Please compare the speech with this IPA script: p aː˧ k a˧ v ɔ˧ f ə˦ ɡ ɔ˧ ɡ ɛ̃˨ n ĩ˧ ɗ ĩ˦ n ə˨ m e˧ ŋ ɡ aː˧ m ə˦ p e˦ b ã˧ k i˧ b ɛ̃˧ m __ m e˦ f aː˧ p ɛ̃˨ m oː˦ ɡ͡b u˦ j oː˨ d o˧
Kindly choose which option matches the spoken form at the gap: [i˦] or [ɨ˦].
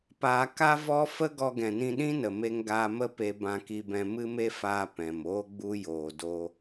ɨ˦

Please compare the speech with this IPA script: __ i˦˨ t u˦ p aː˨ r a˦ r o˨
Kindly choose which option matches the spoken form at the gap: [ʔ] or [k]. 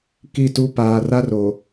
k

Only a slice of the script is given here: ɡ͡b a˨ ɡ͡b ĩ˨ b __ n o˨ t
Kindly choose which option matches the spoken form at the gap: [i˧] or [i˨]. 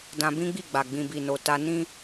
i˨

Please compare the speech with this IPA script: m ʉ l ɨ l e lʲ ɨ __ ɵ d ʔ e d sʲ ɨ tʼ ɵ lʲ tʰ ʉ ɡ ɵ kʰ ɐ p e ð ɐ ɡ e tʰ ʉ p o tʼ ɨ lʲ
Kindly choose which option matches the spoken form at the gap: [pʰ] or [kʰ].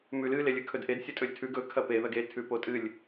kʰ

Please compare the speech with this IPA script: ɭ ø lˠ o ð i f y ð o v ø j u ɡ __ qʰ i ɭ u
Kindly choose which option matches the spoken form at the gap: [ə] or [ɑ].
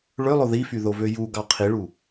ɑ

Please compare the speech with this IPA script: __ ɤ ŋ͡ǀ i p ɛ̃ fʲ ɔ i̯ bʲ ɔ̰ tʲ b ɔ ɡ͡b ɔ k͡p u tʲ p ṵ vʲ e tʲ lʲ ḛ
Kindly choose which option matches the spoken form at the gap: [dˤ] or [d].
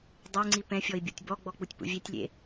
dˤ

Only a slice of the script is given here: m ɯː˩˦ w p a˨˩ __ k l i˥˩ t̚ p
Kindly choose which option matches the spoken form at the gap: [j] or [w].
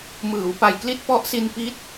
j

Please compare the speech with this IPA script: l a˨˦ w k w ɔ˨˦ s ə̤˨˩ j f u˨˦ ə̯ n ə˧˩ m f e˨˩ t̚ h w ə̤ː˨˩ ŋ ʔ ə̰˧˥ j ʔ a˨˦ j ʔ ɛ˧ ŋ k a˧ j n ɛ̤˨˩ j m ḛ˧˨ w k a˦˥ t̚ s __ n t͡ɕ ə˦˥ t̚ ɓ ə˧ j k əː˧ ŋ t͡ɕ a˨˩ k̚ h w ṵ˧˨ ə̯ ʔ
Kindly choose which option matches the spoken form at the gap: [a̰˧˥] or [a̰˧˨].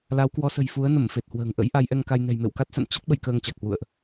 a̰˧˨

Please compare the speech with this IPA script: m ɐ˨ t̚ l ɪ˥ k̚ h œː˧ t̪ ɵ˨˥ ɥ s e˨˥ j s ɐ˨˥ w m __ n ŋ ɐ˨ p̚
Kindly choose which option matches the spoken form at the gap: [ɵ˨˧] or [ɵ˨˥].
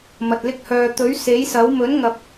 ɵ˨˥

